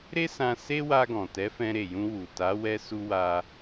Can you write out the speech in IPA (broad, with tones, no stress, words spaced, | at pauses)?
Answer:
ɾe˦sã˧ se˦wa˧ɡɔ̃˨ tɛ˨˦fɛ̃˧ɾe˨jũ˧ wu˨ta˨˦ wɛ˧su˧wa˧